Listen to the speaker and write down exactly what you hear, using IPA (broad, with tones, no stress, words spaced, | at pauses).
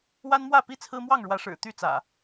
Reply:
wa˦nmwä˥˨pi˦ t͡sʰɹ̩˦mwɑ˥˨ŋɻwä˨˦ʂɻ̩˨˩ t̪y˥˨t͡sä̰˨˩